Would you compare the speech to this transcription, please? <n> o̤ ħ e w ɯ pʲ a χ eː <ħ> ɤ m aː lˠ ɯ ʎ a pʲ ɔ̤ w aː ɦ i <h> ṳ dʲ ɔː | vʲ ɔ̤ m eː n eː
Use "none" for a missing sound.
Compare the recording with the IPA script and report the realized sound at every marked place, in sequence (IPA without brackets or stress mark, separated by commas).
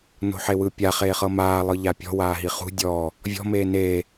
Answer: n, χ, χ